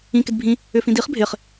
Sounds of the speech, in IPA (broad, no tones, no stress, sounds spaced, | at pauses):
ĩ k ɪ d bʱ ĩ | ʏ f ĩ d i χ bʱ ɪ χ